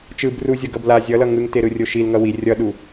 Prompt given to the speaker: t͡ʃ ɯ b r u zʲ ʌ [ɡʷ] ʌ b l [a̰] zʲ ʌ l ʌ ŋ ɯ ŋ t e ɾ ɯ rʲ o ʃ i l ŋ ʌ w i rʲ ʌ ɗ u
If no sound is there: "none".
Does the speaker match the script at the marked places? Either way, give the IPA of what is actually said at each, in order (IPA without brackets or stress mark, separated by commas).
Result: ɡ, a